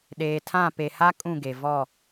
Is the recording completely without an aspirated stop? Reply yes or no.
no